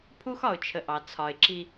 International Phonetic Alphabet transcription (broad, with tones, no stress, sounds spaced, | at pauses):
pʰ u˦ x ɒ˨ ʊ̯ t͡ʃʰ ə˨ ʔ ɑ˨ t͡sʰ ɒ˨ ɪ̯ ǁ i˦